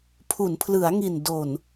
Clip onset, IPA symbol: pʰ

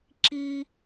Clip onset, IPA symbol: ǁ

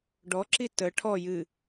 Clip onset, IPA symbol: ɖ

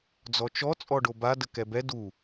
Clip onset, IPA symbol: d͡z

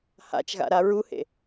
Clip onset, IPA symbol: h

